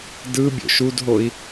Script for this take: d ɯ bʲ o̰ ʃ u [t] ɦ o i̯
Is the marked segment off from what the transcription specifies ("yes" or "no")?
yes